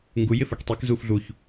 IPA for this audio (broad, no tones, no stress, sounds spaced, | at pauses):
ŋ ɡ u j ɪ f ə˞ k tˤ i k z uː f ɮ u ç